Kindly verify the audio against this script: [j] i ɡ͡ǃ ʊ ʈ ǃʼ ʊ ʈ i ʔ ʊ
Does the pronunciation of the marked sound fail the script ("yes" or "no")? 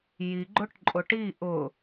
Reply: no